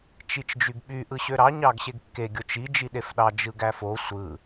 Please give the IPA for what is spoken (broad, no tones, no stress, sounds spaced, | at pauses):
t͡ʃ i t͡ʃ d͡ʒ y ɡ ɓ y ʔ ɯ ɕ ø ɾ ɑ ɲ ɑ ɡ ɕ e ɡ kː e ɡʲ o t͡ʃ i d͡ʒ i ɗ e f ɗ ɑ d͡ʒ ɯ ɡ æ f o sʷ ɯ